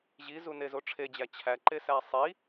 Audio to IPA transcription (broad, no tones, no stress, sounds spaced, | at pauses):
ʑ i z u n e z o ʈ͡ʂʰ e d͡ʑ æ t͡ɕʰ æ ǃ e s æ sˤ i